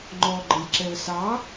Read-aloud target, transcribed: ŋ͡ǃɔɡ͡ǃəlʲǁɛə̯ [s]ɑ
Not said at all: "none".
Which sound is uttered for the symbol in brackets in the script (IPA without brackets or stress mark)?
s